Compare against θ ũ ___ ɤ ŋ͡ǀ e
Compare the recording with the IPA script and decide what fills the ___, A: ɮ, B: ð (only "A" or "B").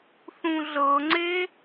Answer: A